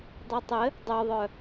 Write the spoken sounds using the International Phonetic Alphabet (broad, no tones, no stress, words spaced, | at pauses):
dˤitˤɘ | dˤœðˤœ